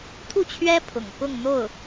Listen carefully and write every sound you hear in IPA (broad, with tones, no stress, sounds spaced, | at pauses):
t̪ʰ u˥˩ t͡ɕʰ ɥ ɛ˥ pʰ ʊ̰˨˩ ŋ k ʊ˥˧ ŋ n̪ o˥˩ ʊ̯